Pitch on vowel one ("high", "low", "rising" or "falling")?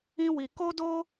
high